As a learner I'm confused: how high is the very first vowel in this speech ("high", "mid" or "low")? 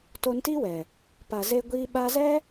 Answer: mid